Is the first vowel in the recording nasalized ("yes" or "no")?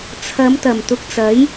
no